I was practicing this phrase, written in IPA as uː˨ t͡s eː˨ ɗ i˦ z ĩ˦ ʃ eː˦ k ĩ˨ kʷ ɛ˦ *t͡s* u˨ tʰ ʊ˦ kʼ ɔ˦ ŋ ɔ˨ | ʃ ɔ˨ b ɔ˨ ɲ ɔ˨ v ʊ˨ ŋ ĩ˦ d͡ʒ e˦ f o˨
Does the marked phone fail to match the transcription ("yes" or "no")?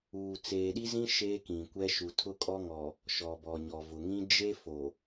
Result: yes